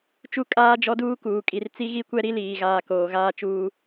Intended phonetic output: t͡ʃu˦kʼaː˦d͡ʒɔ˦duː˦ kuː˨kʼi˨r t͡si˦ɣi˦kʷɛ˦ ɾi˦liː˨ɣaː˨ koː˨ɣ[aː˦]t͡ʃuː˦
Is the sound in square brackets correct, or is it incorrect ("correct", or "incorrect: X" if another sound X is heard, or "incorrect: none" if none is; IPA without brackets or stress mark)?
correct